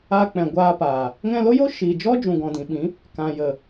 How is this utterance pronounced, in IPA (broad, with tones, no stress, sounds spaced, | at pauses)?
aː˧ k͡p ɛ̃˨ ɡʷ aː˧ p aː˨ | ŋ ɛ̃˧ l o˦ j o˦ ʃ iː˨ d͡ʒ ɔ˦ d͡ʒ ũ˨ ɡ ɔ̃˨ d ĩ˨ ɓ ĩ˨˦ | k ã˨ j ə˨